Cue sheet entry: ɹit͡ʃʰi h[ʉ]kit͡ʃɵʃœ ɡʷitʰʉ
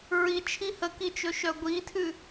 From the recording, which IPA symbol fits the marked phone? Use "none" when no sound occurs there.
ə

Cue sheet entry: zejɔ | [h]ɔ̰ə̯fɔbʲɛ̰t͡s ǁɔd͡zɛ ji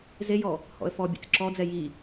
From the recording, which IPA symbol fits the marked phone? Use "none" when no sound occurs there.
h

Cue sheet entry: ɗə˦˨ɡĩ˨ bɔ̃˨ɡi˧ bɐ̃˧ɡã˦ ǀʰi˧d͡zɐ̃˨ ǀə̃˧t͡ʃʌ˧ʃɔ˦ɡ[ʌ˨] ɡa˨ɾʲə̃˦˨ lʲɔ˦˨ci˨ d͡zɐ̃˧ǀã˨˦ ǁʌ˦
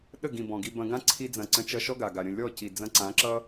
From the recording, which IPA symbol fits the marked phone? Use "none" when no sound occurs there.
a˨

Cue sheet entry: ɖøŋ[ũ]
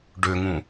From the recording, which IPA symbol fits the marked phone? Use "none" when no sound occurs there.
ũ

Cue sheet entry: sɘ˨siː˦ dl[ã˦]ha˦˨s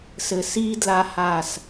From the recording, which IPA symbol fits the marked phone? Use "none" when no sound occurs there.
a˦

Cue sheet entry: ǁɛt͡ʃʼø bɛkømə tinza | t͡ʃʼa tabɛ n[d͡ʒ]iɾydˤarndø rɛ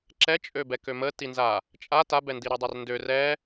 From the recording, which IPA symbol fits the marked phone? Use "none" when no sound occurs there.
d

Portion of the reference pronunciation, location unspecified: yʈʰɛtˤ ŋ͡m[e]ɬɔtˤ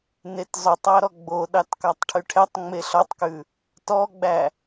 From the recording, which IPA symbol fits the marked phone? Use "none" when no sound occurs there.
e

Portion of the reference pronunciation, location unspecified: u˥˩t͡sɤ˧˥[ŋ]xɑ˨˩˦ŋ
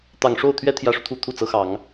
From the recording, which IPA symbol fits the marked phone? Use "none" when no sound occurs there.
none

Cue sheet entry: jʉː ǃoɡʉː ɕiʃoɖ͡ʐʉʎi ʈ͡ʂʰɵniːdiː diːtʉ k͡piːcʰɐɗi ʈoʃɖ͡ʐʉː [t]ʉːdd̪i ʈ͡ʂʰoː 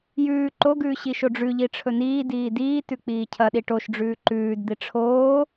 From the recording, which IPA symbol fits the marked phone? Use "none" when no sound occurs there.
ǃ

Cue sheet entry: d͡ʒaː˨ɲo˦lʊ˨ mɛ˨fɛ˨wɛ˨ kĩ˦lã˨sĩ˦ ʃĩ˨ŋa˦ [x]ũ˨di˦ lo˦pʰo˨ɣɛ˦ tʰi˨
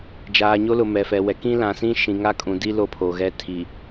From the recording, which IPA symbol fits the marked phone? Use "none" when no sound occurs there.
kʼ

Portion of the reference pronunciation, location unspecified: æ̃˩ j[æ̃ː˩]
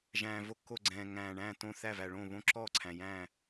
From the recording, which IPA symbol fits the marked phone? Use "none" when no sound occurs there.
æ̃ː˧˩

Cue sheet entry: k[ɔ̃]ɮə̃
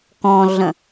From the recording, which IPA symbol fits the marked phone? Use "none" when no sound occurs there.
ɔ̃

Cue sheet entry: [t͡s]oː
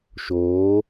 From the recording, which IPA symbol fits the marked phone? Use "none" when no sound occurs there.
ʃ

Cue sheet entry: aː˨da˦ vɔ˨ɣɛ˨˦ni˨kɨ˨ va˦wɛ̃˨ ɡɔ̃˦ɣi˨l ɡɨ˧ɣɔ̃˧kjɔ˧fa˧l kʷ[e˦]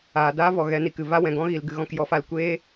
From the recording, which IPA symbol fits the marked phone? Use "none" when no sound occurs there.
eː˦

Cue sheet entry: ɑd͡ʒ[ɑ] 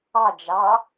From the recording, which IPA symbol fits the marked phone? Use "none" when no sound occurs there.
ɑ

